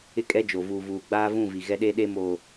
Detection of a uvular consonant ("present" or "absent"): absent